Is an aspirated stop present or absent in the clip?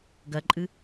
absent